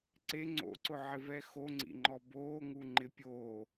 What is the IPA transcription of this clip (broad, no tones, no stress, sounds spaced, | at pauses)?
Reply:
ǀ e ŋ͡ǀ o̰ ǀ ʊ ʕ ɪ v ɛ x o ŋ͡ǀ ḭ ŋ͡ǃ ɔ b oː ŋ u ŋ͡ǃ ɪ pʲ oː